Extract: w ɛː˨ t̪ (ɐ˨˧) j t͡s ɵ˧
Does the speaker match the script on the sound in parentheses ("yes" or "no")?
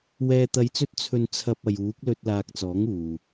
yes